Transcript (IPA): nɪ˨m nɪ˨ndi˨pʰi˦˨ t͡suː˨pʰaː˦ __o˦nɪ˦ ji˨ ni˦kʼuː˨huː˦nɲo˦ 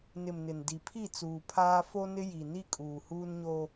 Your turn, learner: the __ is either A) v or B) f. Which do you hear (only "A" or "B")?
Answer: B